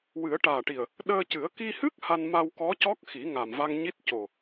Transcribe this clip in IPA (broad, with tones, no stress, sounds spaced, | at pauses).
w ɨ˨˩˦ ə̯ ʈ aː˨˩ ʈ i˨˩ ə̯ | ɗ əː˧ c ɨ˨˩˦ ə̯ k i˧ h ɨ˦˥ k̚ h a˧ n m a˧ w k ɔ˧˥ c ɔ˦˥ k̚ x i˨˩˦ ŋ a˨˩ m v a˧ ŋ ɲ i˦˥ t̚ c o˨˩